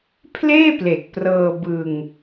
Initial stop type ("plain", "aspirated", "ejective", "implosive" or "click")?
aspirated